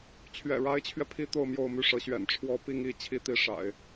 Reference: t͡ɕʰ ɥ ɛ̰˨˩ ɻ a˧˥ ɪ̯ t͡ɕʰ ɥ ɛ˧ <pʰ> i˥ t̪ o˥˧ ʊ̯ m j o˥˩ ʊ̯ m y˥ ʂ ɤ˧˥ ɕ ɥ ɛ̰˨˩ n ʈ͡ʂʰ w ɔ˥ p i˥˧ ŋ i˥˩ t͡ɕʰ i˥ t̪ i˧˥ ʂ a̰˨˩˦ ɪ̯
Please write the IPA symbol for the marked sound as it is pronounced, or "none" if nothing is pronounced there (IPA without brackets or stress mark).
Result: pʰ